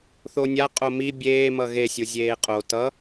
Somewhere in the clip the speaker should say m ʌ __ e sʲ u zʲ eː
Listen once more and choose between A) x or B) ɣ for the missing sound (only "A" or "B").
B